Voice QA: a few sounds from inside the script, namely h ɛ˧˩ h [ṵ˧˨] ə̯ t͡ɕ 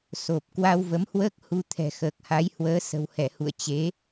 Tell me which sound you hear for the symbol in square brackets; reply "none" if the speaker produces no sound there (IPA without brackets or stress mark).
ṵ˧˨